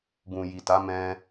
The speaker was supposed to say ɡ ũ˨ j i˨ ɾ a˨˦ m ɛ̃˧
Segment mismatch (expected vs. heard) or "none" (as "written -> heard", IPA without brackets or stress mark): ɾ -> t